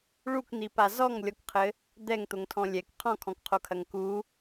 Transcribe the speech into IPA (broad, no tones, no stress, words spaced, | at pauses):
ɭukn̪ipa zɔŋlʲɔkqʰɘ | d̪ɛŋt̪oŋtʰɔ̃ lʲɛk qʰɔ̃kʰɔ̃kqʰokʰɐŋ ku